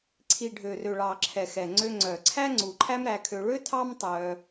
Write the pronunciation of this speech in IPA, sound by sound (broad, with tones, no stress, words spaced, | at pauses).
ǀʰi˨ɖʱø˨rø˨ ɭɑ˨ǁʰɛ˨ xɛ˨ŋ͡ǀø˧ŋ͡ǀœ˨ǀʰæ˦ ŋ͡ǀu˨ǃʰæ˦mɾæ˧kʰø˧ ɭø˦tʰɑ˦mtˤœ˧